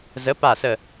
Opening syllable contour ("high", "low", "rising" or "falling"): rising